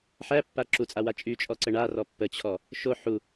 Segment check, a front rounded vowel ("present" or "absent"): present